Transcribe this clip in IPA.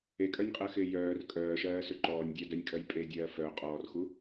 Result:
e kʼ œ nʲ qʼ ɜ x ɪː j œː r kʼ œː ʃ ɜː s ʏ ǃ ɔː nʲ dʲ œ d œ nʲ kʼ ɜ j pʼ e dʲ ɜː f œ qʼ ɔː r x u

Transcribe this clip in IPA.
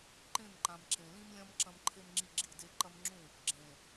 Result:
ǃ ẽ˦˨ m ǃ ã˨ m ǁ ẽ˨ l ĩ˦ m lʲ ɐ̃˦ m ǁ ɐ̃˦ m ǃʰ e˦ m ŋ͡ǁ i˦ ɡ͡ǁ i˦˨ d e˦ ǃ ɐ˦ m ŋ͡ǁ ũ˦˨ | ɡ͡ǁ ẽ˨

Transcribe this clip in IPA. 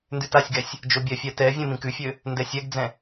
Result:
n d ʉ t a sʲ ɡ ɛ sʲ | d͡ʒ o bʲ ɛ fʲ ɛ t ɛ vʲ ɛ̃ m ĩ k ʉ fʲ ø | n d ɛ sʲ ɛ ɡ d͡z ɛ̃

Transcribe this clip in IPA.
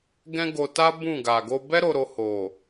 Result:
ɡ ɛ̃˦ ɡ o˧ t a˦ b ũ˦˨ ɡ a˨ ɡ o˧ b ɛ˦ ɾ o˧ ɾ o˧ h o˨

